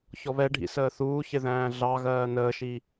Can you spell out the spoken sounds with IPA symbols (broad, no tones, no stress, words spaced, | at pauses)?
çɔβɛɖʱḭ səːθuːçɪ ðæ̃ːɮɑɣɜː nəːʃi